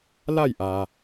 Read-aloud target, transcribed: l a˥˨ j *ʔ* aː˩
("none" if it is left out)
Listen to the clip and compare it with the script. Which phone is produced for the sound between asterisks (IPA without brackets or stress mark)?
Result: ʔ